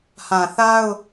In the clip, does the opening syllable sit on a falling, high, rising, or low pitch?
low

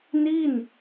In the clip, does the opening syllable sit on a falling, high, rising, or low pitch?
falling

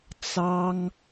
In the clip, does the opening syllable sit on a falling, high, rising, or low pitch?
high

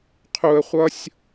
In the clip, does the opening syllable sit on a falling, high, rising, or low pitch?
low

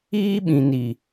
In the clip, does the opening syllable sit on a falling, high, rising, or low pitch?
high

